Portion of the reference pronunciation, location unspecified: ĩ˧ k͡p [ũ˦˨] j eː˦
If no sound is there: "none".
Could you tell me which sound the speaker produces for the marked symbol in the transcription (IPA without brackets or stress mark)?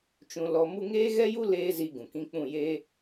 ũ˦˨